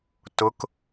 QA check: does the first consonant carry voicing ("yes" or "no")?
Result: no